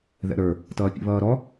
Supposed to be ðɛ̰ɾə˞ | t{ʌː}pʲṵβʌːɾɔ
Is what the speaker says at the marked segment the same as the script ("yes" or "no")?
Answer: yes